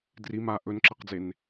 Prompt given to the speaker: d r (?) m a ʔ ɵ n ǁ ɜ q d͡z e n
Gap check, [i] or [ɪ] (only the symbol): i